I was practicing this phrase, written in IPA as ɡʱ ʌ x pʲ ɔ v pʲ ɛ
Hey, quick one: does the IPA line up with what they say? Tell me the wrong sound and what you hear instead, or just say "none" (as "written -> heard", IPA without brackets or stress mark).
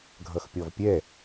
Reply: none